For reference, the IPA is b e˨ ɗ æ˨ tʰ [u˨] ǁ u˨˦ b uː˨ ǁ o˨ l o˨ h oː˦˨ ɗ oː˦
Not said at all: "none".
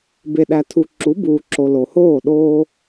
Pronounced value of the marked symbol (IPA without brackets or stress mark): u˨